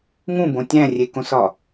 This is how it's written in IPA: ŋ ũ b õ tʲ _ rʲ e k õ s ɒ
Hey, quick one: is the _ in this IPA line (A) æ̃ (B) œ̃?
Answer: A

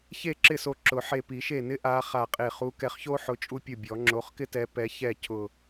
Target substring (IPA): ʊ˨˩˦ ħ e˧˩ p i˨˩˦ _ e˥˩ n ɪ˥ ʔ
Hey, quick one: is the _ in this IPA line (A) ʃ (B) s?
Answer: A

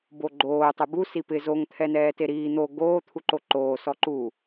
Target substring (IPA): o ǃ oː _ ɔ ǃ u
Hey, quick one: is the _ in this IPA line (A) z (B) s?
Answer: B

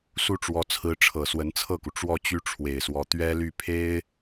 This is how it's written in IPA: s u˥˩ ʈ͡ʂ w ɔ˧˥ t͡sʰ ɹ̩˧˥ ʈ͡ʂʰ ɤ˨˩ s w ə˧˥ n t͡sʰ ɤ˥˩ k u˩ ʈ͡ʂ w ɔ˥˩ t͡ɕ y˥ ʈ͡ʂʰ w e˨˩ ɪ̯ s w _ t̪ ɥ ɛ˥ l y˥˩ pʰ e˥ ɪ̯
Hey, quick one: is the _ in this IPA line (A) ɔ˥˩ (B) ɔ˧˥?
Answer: B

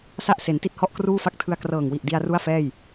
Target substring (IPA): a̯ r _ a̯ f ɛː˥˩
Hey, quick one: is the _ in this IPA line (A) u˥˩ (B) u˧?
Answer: A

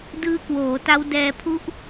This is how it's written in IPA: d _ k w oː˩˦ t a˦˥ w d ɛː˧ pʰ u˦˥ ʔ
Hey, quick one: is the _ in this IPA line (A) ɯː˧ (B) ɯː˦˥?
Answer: B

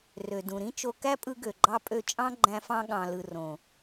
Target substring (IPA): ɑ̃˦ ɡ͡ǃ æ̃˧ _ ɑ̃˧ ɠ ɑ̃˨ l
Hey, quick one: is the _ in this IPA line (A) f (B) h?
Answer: A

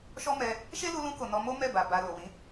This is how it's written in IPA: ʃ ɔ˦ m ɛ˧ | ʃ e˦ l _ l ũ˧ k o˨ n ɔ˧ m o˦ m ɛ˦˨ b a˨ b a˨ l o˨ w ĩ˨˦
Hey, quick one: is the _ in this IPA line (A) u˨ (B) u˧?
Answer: B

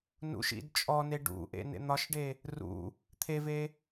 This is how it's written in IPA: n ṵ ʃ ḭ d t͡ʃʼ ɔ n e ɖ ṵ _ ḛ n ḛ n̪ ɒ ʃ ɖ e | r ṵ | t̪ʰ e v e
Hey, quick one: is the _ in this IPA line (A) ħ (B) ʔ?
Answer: B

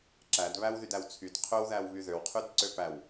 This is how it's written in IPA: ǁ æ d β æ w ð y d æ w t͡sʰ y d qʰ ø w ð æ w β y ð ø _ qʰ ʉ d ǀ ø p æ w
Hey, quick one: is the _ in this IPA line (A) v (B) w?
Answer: B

